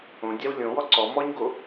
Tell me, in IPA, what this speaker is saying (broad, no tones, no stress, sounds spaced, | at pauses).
õ dʲ a w lʲ õ w ɔ ǀ ɔ m ɔ ɲ ɡ o